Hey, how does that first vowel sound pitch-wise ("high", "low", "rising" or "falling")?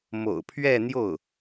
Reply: low